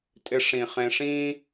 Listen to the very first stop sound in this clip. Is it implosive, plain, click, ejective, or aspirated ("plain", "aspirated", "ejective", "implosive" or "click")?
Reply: ejective